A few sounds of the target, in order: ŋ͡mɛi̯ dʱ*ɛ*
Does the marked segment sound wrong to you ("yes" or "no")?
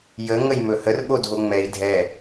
no